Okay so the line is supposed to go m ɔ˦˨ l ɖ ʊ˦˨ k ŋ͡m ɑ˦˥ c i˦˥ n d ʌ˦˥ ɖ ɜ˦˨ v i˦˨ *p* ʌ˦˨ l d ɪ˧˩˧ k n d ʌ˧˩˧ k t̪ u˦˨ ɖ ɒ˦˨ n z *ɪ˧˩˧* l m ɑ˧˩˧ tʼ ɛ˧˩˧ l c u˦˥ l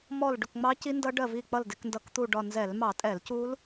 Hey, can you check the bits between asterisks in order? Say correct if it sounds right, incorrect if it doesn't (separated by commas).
incorrect, incorrect